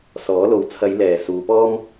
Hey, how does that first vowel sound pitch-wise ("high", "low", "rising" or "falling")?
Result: rising